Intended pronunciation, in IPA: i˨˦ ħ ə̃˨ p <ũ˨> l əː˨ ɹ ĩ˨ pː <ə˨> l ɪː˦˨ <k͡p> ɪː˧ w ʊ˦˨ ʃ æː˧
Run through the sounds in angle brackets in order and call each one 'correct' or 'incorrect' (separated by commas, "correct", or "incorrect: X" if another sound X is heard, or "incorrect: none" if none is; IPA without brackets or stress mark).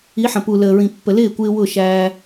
incorrect: u˨, correct, incorrect: kʷ